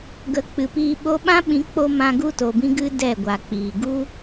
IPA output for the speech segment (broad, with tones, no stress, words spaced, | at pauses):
ɡə˨˦k͡pɨ˨piː˧ ɓo˧ɓã˦ɓĩ˨˦k͡po˧ mã˧ ɡu˦to˨bĩ˦ ɡɨ˦ dɛ˦˨ɡʷa˨k͡piː˨ ɡu˦